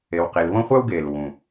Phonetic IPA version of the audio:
e˨ w q i˨ l β õ˥ χʷ æ˥ w ɡ eː˩ l w ũ˩

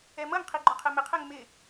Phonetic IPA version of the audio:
ɛ m ʌ ŋ qʰ i ɡ͡ǃ ʊ qʰ ɛ m ɪ qʰ ɛ ŋ m ɪ

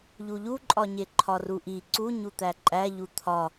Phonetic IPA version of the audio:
ʎ u ʎ u ǃʼ ɒ ɲ e ǃʰ ɒ r u ʔ i ǀ u ɲ u t̪ æ ǃʼ æ ʎ u t̪ʰ ɒ

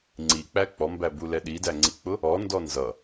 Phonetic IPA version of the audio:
ŋ͡ǀ i k͡p æ k͡p ɔ m b æ b u l ɛ ɗ i d æ ŋ͡ǀ i k͡p ʊ | ɔ n d ɔ n z ʌ

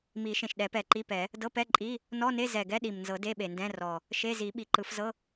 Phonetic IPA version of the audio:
m i˨˩˦ ʃ ẽ˨˩ ʃ ɗ ɛ˨˩˦ p ɛ˨˩ ǃ i˧˥˧ p ɛ˨˩˦ | d ɤ˧˥˧ p ɛ˧˥˧ ǃʼ i˧˥˧ | n ɔ˧˥˧ n e˧˥˧ z ɛ˨˩ ɡ ɛ˧˥˧ ɗ i˨˩ m n z ɤ˨˩˦ d e˧˥˧ ɓ e˨˩ n d ɛ̃˧˥˧ r ɔ˨˩ | ʃ e˧˥˧ z i˨˩˦ ɓ i˨˩ ǃ ɯ˨˩˦ f z ɤ˧˥˧

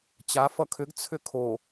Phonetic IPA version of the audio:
t͡ɕ a f ʌ kʰ ʏ ɡ t͡sʰ ʏ kʰ o

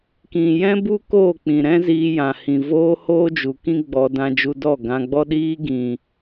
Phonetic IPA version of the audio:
k ĩ˨ j ɛ̃˦ b u˦ k oː˦˨ k͡p ĩ˨ ɾ ɛ̃˦ z iː˧ j ã˨ h ĩ˨ v oː˦ h oː˦ d͡ʒ u˨ k ĩ˦ ɡ͡b ɔ˧ d ã˧ d͡ʒ u˧ d ɔ˦˨ ɡ ã˧ ɡ͡b ɔ˦ ɗ iː˦ ɡ ĩ˨

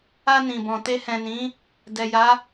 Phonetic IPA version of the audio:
a˧ n ĩ˨ b ɔ̃˨ t e˧ h ɛ̃˨ n ĩ˨˦ | d ɛ˨ j a˨˦

